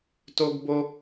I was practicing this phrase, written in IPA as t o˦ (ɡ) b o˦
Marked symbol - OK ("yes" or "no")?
yes